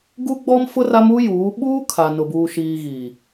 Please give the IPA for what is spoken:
ɡu˦ɡ͡bɔ˦mfʊ˦ ra˦mu˦ juː˨˦ ɓuː˦ kʰa˨nʊ˨buː˨ʃiː˨ ɣiː˨

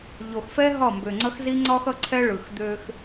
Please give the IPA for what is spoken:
ʎo˨xfɛ˦ ɦɒ˦˨mbø˨ŋ͡ǀʌ˦xzi˦ ŋ͡ǀɒ˦xʌ˦ǀʰɛ˦ ɭɯ˨xd̪ø˦x

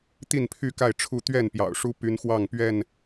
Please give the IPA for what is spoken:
t̪i˥˨npʰy˥˨ka˥˨ɪ̯ ʈ͡ʂʰu˦ t̪ɥɛ˥˨npjɑ̰˨˩ʊ̯ʂu˦ py˦nxwɑ˥˨ŋpɥɛ˥˨n

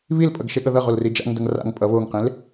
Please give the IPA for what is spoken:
βilpʼʌɡ ʃeɠʌðʌʁol rid͡ʒa̰ŋdʌŋ ra̰ŋ pʼʌ βoŋqẽl

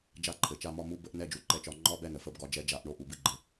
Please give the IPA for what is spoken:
d͡ʒa˥˨ǃʰɘ˩t͡ʃa˥˨ mɒ˥˨mu˧˥˧ bə˧˥˧ʔ nɛ˧˥˧d͡ʒu˩ǃɛ˧˥t͡ʃɒ˧˩˧ ŋ͡ǃɒ˧˥˧bɛ˥˨ nə˩fə˥˨bɡɒ˥˨d͡ʒɛ˧˥ d͡ʒa˧˩˧ʔɳo˥˨ʔu˩ bɨ˧˥˧ɡ͡ǃɘ˩

